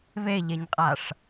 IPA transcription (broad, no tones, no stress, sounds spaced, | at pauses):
β e ʎ e ɲ qʼ a ʂ